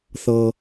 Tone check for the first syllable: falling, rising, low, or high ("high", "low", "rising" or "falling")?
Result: low